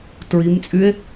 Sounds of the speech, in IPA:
t ɹ i m t͡sʼ y e̯

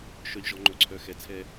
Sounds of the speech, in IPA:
ʃ œ˨ ʎ ʒ ɔ˨ ŋ͡ǃ ɵ˨ ǀʰ œ˨ x ɛ˨ t͡sʰ ɛ˧

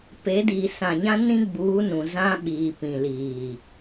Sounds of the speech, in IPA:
p e˨˦ d iː˨ s ã˨ ɲ ã˦ n ĩ˦ ɡ͡b uː˨˦ n ũ˨ z ã˦ ɓ iː˨ p ĩ˨ l iː˨

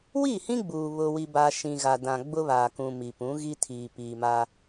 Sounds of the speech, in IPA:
w i˦˨ h ĩ˦ ɡ͡b uː˨ β ʊ˦ w i˦ b a˦ ʃ ĩ˨ ɣ a˨ d ã˨ ɡ͡b ʊ˦ β aː˨ k ũ˨ m i˨ p ũ˨˦ ɣ i˦ tʰ iː˨ p iː˨ m a˦

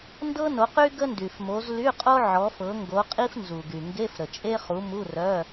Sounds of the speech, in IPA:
n d ɤ˥ n o˨˦ q y˥ ɡ ə˥ n d y˩ f m o˨˦ z l y˧˥˧ qʼ o˥ ʕ ɔ˨˦ f ɤ˨˦ ŋ ɡ o˨˦ qʼ i˥ f n z u˩ ɡ y˩ ŋ ɡ e˧˥˧ f ɾ ə˩ t͡ʃʼ e˥ χ u˨˦ m u˧˥˧ r œ˧˥˧

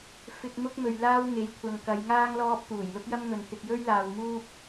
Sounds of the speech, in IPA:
f ɪ˧ k̚ m ʊ˥ k̚ m ɵ˨ ɥ l aː˧ w ŋ e˨˧ j kʷʰ ɐ˨ ŋ k ɐ˨˧ j ŋ aː˥ ŋ l ɔː˥ p̚ t̪ uː˨˩ j l ʊ˥ k̚ j ɐ˥ m ŋ ɵ˨ n t̪ ɪ˨ k̚ j ɵ˥ ɥ l aː˨ w m uː˥ p̚

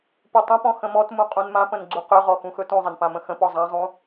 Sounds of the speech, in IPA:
p u tˤ ə̃ p ɔ̃ x ə̃ m ɔ t m ũ qʼ ũ n m ã p ə̃ n ɡ͡ǀ u q ø ʁ ɔ x ũ x ɵ t ũ zˤ ə n p ã m ə̃ x ə̃ p ɔ zˤ ã zˤ ũ

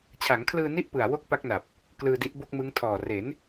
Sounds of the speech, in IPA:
t͡ɕʰ a˩˦ ŋ kʰ l ɯː˧ n i˥˩ ʔ p ɯ˨˩ a̯ w o˥˩ k̚ p a˦˥ k̚ n a˨˩ p̚ | k l ɯː˧ d i˦˥ ʔ b o˥˩ k̚ m ɯ˦˥ ŋ tʰ ɔː˨˩ r e˩˦ n

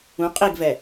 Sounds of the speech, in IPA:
ũ qʼ i ɡ v ɛ

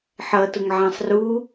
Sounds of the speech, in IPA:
ħ ʌ t ʊ ŋ ʕ ã sˤ r u

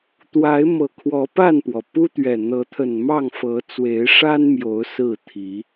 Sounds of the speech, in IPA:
t̪ w a˨˦ ɪ̯ m ɤ˨˩ kʰ w ɔ˨˦ p a˥˨ n p w ɔ˩ p u˦ t̪ ɥ ɛ˨˩ n̪ ɤ˨˦ t̪ʰ ə˨˩ n m ɑ˥˨ ŋ f ɤ˨˦ t͡s w e˨˦ ɪ̯ ʂ a˦ n m j o˨˦ ʊ̯ s ɹ̩˥˨ t̪ʰ i˨˦

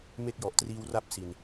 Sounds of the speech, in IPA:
m e˦˥ k̚ j ɔ˨˩ ʔ t r iː˧ w r a˥˩ p̚ s i˨˩ n

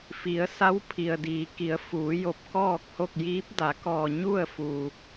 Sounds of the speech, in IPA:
f i˩˧ ə̯ s a˧˥ w pʰ i˩ ə̯ d iː˩˧ k i˩˧ ə̯ f uː˩˧ j o˧˩ p̚ k ɔː˥˨ k̚ h o˥˨ k̚ j iː˧˥ p̚ d a˩˧ k ɔː˧˩ ɲ u˥˨ ə̯ f uː˧˩

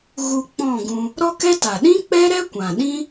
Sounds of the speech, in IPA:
ɣ u˧ k͡p ɔ̃˦˨ ɡ ũ˧ | ɾ ɔ˦ k ɛ˦ t a˨ ɗ ĩ˦ k͡p ɛ˦ ɾ ɛ˦ kʷ ã˨ ɗ ĩ˦

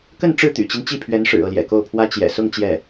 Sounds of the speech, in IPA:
k ə˥˧ n ʈ͡ʂ ɻ̩˥˩ t̪ y̰˨˩ t͡ɕ i˦ n t͡ɕ i˥˩ pʰ ɥ ɛ˧˥ n ʂ ɻ̩˨˩ ɤ˥˩ l j ɛ̰˨˩ k o˥˩ ʊ̯ pʰ w ä˥ t͡ɕ j ɛ̰˨˩ s ʊ˥˧ ŋ t͡ɕ j ɛ˥˩

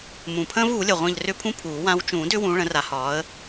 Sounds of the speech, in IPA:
m ũ˨˩ pʰ ə̃ː˦ v uː˨˩˦ lʲ ə˨˩ ʁʷ ə̃ː˦˨ ʎ r ʏ˦ pʰ ũ˦ pʰ uː˨˩˦ w ã˨˦ w t͡ʃ ũː˨˩˦ d ʏ˦ w ũ˨˦ ɭ ə̃˨˦ r a˨˦ h ɒː˨˦ ə̯

